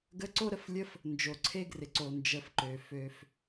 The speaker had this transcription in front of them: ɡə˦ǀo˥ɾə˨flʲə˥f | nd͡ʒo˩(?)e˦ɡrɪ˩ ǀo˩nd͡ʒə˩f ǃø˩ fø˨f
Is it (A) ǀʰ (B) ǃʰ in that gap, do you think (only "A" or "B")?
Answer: A